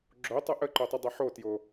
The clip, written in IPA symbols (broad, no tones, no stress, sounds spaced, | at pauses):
ɡ͡ǁ o tˤ œ ʔ ə ǃ o tˤ ɐ dˤ ɛ ħ o t j o